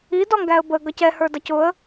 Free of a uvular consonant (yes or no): yes